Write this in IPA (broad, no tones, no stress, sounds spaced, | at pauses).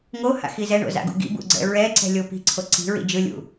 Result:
ŋ o h a̰ x i z ɛ ɳ o̰ z a̰ ɡ ṵ ɡ ḭ b ṵ ɡ͡ǀ ɛ̰ ɹ ɛ ǀ ɛ̤ lʲ o p i̤ ǀʰ o ǀ i̤ ɹ ḭ d͡ʒ ɯ lʲ ṵ